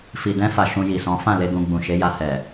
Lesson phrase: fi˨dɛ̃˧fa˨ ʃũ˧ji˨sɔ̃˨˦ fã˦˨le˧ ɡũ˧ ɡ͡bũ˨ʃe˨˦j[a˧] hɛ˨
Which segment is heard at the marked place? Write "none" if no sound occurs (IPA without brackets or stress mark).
a˧